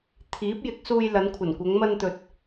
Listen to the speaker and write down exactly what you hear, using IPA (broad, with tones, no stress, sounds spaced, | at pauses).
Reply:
t̪ʰ iː˨˥ p̚ j ɪ˨˥ k̚ s uː˧ j l ɐ˨˧ n kʷʰ ɐ˨˩ n kʷ ɐ˨˧ ŋ m ɐ˧ n t̪ ɵ˨ t̚